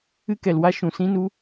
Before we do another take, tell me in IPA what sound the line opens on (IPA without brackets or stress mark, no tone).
ɨ